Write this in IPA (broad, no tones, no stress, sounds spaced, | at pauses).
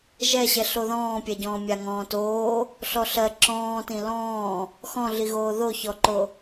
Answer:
ʒ ɛ ɕ ɛ ɬ o ð ɔ̃ː pʲ ɛ ɟ ɔ̃ː mʲ a ŋ ɔ̃ː t oː | ɬ ɔ ɬ ɜ ǁ ɔ̃ː t ĩ l ɔ̃ː | x ɔ̃ ɮ i ɣ oː ð o ç ɔ ǃ o